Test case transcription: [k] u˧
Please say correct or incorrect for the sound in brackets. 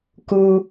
correct